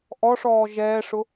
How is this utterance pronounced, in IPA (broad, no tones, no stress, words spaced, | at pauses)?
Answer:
ʔɔʂɔː ʒɛːʂʊ